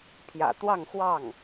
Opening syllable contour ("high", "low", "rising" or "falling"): low